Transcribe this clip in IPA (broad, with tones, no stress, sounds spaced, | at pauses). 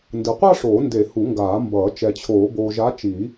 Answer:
n d ɯ˨ qʷ a˥˧ ʂ oː˨˩˦ n d e˨˩˦ h u˨˩˦ ŋ ɡ aː˨˩˦ m b ʌː˨˩˦ t͡ʃ ɛ˨ t͡ɕʰ oː˨˩˦ b oː˨ ʒ a˨˥ t͡ʃ i˨˩˦